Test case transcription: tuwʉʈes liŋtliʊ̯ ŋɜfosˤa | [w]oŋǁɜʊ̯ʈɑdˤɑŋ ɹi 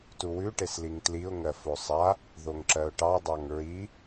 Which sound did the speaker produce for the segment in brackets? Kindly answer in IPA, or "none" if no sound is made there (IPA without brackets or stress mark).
ð